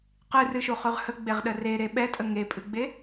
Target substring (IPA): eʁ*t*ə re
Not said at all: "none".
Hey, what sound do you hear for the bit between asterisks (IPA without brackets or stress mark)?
ɗ